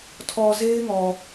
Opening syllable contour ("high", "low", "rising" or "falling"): low